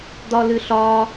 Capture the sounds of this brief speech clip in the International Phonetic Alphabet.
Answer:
d̪ ɒ l ɨ ɬ ɒ

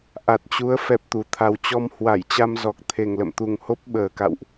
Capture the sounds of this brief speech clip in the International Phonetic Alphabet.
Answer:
ʔ a˨˩ t̚ t͡ɕ u˨˦ ə̯ f ɛ˦˥ p̚ t̪ u˨˩ t̪ʰ a˧ w t͡ɕ ɔ˧ m h w a˧˩ j t͡ɕ a˧ m z ɔ˨˩ k̚ t̪ʰ e˨˩ ŋ l ə̰˧˨ m t̪ u˨˩ ŋ h o˦˥ p̚ ɓ əː˨˩ k a̰˧˨ w ʔ

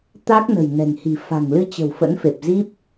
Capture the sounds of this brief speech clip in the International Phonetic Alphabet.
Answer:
t̪ a˦˥ k̚ n ə̤˨˩ j n ɛ̤˨˩ ŋ h i̤˨˩ f a̤˨˩ ŋ l ɨ˧ t͡ɕ ə̤˨˩ w f ə̰˧˥ n f e˨˩ p̚ z i˦˥ p̚

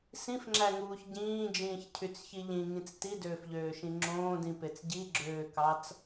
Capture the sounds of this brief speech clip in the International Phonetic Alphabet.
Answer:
s ĩ f ŋ͡ǁ æ ŋ uː ç ɟ ĩː d͡ʒ ĩː ç cʰ y t͡s ç i ʎ ĩ ŋ ĩ t͡s t i d øː f ʎ øː ʃ ĩ ŋ͡ǁ õː d ĩ p e t͡s ɟ i ɡ͡ǁ øː k ɑ t͡s

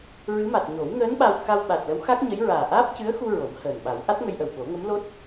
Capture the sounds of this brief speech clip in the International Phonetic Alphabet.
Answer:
ɹ ɨ˧˥ m a˨˩ t̚ ɲ o˨˩˦ w ŋ əː˧˥ n ɓ a˧ w k a˧ w ɓ a˨˩ t̚ l ə˧˥ w x a˦˥ k̚ ɲ ə˧˥ j ɹ aː˨˩ ʔ aː˦˥ p̚ c ɨ˧˥ ə̯ x u˧ ɹ o˨˩˦ m h əː˨˩ n ɓ a˨˩˦ w ʔ a˦˥ t̚ ŋ ə˧ j ʔ ə˨˩ w ɓ o˨˩˦ ŋ ə˧˥ m l o˦˥ t̚

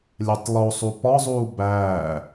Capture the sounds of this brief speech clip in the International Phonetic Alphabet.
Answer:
lʲ æ tˤ lˠ o sˤ u p ɒ zˤ uː b æː

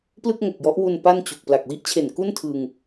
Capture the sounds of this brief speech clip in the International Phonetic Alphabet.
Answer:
p l ɯ˥˩ k̚ ŋ o˨˩ k̚ j ɔ˦˥ ʔ w u˧ n p a˥˩ n t͡ɕ u˨˩ k̚ p l a˨˩ k̚ w i˥˩ ʔ t͡ɕʰ e˨˩ n k u˥˩ n tʰ ɯ˧ ŋ

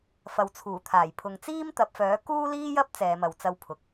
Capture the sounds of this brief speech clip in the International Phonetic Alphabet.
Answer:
f ɐ˨ w t͡sʰ uː˨˩ t̪ʰ aː˨˩ j pʰ ʊ˨˧ ŋ t͡s iː˥ m t̪ ɐ˨˥ p̚ f œː˨˥ k uː˥ l iː˥ j ɐ˥ p̚ t͡s ɛː˨˧ m ɐ˨ w t͡s ɐ˧ w pʰ ʊ˨˥ k̚

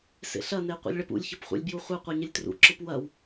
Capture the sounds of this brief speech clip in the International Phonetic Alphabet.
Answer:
s ḛ ɬ ɐ n e qʷ ḛ lʲ ɭ ɛ p ṵ lʲ ç ɐ p χʷ ɛ̰ lʲ b j u χʷ ɛ qʷ ɛ ɲ ɪ lʲ t r ṵ ǁ ɯ p w ɐ w

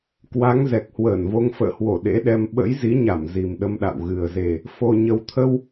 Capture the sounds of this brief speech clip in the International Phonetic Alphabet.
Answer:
k w a˨˦ ŋ z ɛ˨˩ k̚ h w əː˧˩ n v o˧ ŋ f ə̰ː˧˨ h w o˧˩ ɗ ḛ˧˥ ɗ ɛ˧ m ɓ ə̰˧˥ j z i˨˦ ɲ a˧˩ m z i˨˩ m ɗ ə˧ m ɗ a̰˧˨ w ɣ ɨ˨˩ ə̯ z e˨˩ | f o˨˩ ɲ ə˨˩ w t̪ʰ ə˧ w

